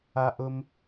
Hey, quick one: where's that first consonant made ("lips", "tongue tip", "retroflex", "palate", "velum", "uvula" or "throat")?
throat